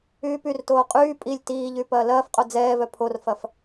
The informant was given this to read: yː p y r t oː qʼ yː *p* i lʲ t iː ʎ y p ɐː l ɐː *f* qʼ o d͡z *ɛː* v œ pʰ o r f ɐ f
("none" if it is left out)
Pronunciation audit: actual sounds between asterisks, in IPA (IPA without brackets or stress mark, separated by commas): pʼ, f, ɛː